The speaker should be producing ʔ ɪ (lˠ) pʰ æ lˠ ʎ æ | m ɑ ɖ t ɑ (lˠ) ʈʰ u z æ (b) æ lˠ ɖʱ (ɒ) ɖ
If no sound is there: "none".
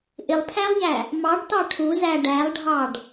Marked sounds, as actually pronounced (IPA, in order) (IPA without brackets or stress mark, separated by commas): lˠ, none, ɖ, ɑ